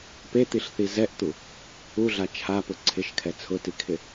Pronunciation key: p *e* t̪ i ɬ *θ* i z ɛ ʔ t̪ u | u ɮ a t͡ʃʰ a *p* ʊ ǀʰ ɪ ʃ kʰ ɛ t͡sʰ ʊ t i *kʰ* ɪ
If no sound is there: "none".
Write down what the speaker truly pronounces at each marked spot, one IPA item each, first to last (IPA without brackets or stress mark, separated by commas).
e, θ, p, kʰ